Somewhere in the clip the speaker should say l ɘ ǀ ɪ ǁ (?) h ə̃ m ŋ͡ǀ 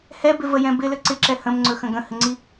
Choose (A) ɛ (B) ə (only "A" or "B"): A